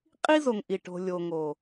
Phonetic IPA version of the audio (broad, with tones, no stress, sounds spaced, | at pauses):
qʼ i˦ z o˨ ŋ ʔ i˨ ʈ o̤˨ lʲ o˨ ŋ o˨